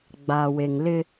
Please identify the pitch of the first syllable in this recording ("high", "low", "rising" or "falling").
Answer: low